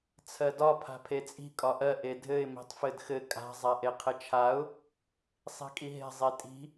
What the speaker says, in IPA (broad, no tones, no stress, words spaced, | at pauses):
t͡sʰɜdɒ pʰa̤pʰet͡sʼi̤ kʼɒʔɜ ʔedʱɘɪ̯ mi̤tˤfɘdxɘ kʼa̤ zˤaʔeqʰɘt͡ʃʰaʊ̯ | sˤi̤kʼiɦe̤ zˤetʼi̤